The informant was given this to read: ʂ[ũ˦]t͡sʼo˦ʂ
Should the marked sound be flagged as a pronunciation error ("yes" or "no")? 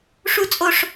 yes